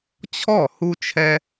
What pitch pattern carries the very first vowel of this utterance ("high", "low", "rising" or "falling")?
falling